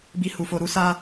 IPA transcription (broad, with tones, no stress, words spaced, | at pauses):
bi˧hu˨fo˧ ɾu˦sa˦